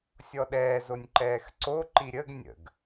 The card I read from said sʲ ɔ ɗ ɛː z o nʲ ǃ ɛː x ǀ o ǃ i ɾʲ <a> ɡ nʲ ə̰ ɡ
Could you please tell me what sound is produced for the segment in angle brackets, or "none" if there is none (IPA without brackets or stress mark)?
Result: ə